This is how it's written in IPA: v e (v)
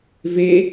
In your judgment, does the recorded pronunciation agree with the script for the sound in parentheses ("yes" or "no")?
no